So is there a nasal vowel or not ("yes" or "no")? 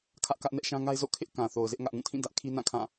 yes